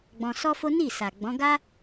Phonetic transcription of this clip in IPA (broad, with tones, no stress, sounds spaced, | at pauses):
ɡ͡b ɔ̃˧ s ɔ˦ f o˦ n i˦˨ s a˨ ɡ͡b ɔ̃˨˦ ɡ a˦